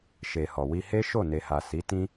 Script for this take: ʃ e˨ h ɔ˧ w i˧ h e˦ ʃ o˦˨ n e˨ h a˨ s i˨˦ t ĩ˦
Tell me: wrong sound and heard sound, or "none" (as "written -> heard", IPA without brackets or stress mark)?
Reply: ɔ˧ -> ɔ˨